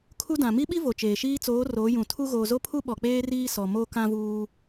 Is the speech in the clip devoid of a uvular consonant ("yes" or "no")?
yes